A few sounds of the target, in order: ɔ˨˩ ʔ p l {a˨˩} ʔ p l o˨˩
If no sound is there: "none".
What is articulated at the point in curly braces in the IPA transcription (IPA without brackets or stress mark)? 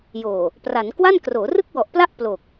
a˥˩